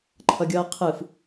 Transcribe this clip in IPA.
ǃʰ ʌ ɡʲ ʌː qʰ ɯ f

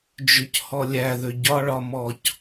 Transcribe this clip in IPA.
d͡ʒ ʉ c h ɔ lʲ æ ð ʏ ɟ ɒ ɭ ɒ m ɔ c

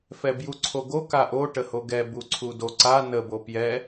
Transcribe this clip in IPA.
f ɛ b j u ǀʰ o ɡ o k a ʔ o ʈ ə h o ɡ ɛ b u ǀʰ u d o ǀ a n ə b o p j ɛ

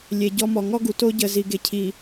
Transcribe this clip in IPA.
lʲ e˨ ɟ ɔ˦ m ɔ˨ ŋ ɔ˦ ɡ u˨ t o˦ ɟ ə˨ z i˨ ɡ e˨ cʰ i˨

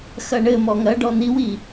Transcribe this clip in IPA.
x ɐ ɳ ɘ m ɔ ŋ ɐ ɖ ɔ n i w i

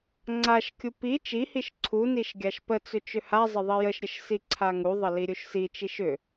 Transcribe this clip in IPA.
ŋ͡ǀ a ʃ kʲ u p i t͡ʃ i h i ʃ ǀʰ u n i ʃ ɡʲ a ʃ p ə t͡s ʏ t͡ʃ ʏ h a zˤ ə ðˤ i j ə ʃ ɾʲ ə ʃ s i ǀʰ a ŋ u ðˤ ə l i ɾʲ u ʃ s i t͡ʃ i ʃ ʏ

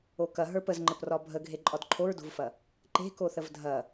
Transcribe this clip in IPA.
o k ɐ ɦ ə˞ p ə z ŋ͡ǃ ə p r ɒ bʱ ə ɡʱ e ǃʼ ɒ d ǃʰ o ɹ d o̤ v f ɐ | ǃ e̤ k o θ ə v dʱ ɐ

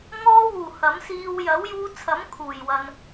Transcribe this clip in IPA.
ŋ ɔː˧ w uː˨˩ h ɐ˨˥ m s iː˧ w j ɐ˨˥ w j uː˧ t͡sʰ ɐ˨˥ m kʰ uː˨˩ j w ɐ˨ n

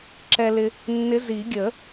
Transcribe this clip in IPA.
ǁ ɛ˧ l ɪ˧ | nː ɪ˧˥ z i˨˩˦ ɡʲ ə˨˩˦

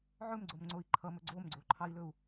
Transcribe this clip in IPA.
ʕ ɵ m ɡ͡ǀ o m ŋ͡ǀ o i̯ ǃʰ ʌ m ɵ ɡ͡ǀ o m ɡ͡ǀ o ǃʰ ɑ i̯ l ɵ u̯

